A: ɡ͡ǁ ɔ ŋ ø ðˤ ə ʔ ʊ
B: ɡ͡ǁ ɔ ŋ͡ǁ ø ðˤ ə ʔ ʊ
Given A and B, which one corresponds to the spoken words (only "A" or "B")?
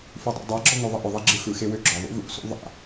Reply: A